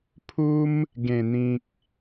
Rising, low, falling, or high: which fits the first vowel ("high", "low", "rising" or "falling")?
high